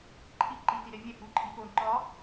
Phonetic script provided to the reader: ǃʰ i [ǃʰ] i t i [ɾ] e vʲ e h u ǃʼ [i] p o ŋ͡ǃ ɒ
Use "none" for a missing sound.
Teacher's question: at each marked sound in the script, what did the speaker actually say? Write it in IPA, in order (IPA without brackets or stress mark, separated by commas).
ǃ, ɾ, i